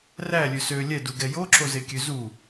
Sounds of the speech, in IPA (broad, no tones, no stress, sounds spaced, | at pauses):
r æ lʲ ø s ø lʲ ɛ d u ɡ ɛ j o ǁ o z e kʲ ø z u